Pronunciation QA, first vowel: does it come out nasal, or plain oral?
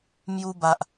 oral